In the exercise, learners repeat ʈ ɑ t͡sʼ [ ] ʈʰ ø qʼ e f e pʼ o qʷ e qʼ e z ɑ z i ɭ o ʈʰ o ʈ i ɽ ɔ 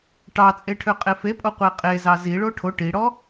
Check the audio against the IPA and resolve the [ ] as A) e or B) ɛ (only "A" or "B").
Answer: A